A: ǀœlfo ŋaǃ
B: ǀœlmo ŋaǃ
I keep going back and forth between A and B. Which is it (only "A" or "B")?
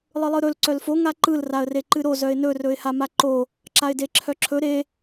A